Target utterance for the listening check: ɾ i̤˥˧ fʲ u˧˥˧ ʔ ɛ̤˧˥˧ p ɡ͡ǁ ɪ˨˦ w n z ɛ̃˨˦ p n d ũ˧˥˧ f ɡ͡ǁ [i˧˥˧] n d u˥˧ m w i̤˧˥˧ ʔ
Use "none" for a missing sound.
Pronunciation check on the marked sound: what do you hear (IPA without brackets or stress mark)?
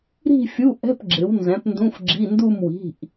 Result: i˧˥˧